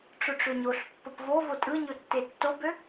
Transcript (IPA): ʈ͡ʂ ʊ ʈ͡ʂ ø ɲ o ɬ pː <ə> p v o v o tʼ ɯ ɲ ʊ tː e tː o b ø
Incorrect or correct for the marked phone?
correct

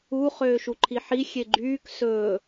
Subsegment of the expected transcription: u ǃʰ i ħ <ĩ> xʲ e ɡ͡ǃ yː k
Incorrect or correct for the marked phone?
incorrect: i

